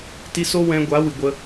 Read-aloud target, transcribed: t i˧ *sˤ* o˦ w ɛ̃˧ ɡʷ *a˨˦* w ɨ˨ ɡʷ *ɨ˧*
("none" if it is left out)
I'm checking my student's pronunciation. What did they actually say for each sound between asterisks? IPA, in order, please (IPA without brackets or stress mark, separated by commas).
s, a˨˦, ə˧